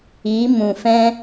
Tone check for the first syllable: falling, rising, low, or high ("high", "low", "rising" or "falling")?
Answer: rising